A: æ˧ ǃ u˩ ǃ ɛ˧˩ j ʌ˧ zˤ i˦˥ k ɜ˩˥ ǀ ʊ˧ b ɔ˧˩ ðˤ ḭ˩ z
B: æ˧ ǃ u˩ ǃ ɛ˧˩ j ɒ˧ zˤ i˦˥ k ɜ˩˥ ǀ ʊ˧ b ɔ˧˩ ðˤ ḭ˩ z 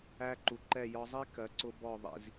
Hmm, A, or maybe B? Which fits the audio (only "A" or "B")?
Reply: B